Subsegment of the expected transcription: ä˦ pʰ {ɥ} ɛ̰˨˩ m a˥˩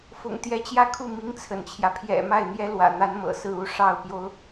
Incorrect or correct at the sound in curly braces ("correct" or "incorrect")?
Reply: incorrect